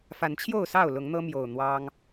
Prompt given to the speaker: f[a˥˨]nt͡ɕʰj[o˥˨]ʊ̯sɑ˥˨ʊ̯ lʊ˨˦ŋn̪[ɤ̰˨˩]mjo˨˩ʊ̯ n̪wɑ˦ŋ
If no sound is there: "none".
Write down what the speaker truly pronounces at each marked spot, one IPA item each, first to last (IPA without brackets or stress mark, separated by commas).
a˨˦, o˥˨, ɤ˦